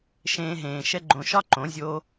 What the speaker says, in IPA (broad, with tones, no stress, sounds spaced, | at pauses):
ʃ ẽː˧ ɦ ẽː˨ ʃ ɛ˧ ɡ͡ǃ õ˨ ʃ ɒ˦ ǃ õ˨˦ zʲ oː˧